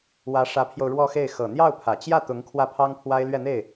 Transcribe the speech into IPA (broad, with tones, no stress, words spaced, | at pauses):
wä˧˥ʂä˧˥pʰjo˧ʊ̯ ɻwɔ˥˧xe˥˩ɪ̯ xɤ˨˩n̪jɑ˥˩ʊ̯pʰä˨˩ t͡ɕjä˥˩t̪ʊ˧˥ŋ kʰwä˥˩pʰɑ˥ŋ pʰwa˥ɪ̯lɥɛ˥˧n̪e˥˩ɪ̯